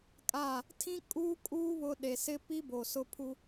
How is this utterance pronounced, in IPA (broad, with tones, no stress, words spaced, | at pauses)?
kʼa˦˨ | tʰĩ˦ kʼuː˦kʼuː˦ βʊ˦ ɗe˨sɪ˦pi˦ bo˨sʊ˦pʰu˦